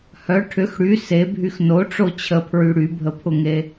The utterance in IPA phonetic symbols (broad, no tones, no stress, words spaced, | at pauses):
hœ ʈʰʏx ɽy sebʱyx no ʈ͡ʂot͡ɕʰəpʰɹy ɽybʱəpʰʊŋe